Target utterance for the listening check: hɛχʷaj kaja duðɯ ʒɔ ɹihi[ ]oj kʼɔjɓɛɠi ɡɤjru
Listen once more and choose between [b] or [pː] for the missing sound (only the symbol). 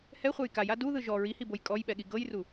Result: b